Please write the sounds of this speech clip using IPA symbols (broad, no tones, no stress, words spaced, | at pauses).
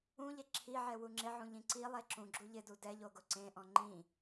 ũʎe ǁʰiʕɛ wuŋ͡ǁɪʕũ ʎĩǀilˠɛ ǁũɡ͡ǁu ʎɪdu dɛʎo ɡoǀẽʔɔ̃ ŋ͡ǃĩ